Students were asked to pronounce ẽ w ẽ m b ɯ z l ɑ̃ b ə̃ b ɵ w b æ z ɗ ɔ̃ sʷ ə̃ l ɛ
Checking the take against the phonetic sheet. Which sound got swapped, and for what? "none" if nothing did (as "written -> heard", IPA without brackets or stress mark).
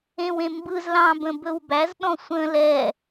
none